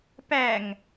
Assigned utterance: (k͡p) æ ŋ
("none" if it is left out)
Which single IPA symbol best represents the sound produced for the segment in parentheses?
p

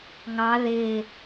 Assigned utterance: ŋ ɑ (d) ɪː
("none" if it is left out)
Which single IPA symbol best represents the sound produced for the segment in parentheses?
ð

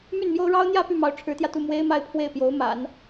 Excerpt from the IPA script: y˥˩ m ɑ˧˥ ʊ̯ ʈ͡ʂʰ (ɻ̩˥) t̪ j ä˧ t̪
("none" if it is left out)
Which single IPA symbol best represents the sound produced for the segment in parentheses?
ɻ̩˧˥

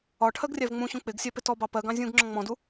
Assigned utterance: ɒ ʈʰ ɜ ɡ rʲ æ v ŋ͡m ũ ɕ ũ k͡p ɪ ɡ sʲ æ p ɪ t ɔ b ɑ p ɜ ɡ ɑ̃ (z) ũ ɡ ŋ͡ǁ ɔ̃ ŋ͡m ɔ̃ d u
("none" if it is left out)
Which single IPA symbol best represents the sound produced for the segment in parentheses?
zʲ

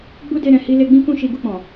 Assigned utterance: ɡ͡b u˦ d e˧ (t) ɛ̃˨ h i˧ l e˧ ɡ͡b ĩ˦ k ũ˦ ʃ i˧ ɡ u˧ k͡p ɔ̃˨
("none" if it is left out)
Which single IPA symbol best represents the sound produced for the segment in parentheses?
ɾ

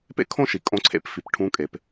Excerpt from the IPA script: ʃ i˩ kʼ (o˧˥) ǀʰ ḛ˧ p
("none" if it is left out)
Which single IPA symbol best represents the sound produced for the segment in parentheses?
õ˧˥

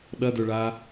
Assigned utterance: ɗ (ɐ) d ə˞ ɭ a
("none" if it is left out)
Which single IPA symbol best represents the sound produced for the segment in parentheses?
ɐ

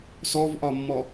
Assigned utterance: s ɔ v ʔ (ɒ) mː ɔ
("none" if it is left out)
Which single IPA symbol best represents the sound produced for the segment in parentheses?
ɒ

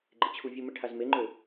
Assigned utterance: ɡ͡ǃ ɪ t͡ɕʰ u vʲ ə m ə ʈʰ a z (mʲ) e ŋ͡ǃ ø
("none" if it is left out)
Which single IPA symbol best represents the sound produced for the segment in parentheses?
m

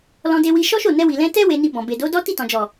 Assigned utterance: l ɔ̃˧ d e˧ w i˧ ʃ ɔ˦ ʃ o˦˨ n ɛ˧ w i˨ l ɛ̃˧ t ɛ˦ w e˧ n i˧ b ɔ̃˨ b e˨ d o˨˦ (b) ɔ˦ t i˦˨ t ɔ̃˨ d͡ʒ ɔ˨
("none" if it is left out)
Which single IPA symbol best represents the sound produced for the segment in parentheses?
d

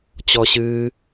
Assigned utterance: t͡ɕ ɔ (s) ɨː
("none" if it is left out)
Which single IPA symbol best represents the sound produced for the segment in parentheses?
ɕ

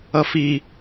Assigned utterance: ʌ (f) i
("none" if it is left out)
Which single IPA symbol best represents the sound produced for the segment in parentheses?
f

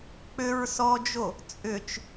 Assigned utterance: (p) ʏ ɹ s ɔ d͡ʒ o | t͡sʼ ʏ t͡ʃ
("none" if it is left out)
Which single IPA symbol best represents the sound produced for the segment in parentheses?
k͡p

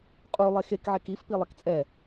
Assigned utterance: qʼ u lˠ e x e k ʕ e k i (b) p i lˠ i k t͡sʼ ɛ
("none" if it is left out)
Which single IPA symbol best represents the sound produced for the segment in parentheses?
f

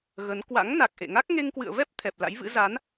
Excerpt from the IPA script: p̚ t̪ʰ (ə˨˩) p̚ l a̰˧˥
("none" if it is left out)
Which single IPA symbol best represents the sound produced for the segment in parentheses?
ɛ˨˩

